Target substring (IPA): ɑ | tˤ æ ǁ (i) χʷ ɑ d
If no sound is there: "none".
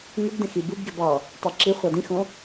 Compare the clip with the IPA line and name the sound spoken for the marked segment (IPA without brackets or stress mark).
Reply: i